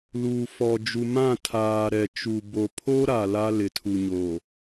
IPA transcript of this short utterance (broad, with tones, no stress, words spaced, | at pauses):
luː˨fɔ˨ d͡ʒu˨ mã˦˨ tʰaː˨ ɾɛ˨t͡ʃu˨ bo˨pʰo˦ɾa˨ la˦lɪ˨tʰu˨ɲo˨